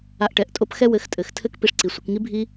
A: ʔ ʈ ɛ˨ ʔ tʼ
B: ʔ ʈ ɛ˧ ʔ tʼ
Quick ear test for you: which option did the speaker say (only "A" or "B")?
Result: A